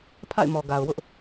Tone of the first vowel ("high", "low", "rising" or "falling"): falling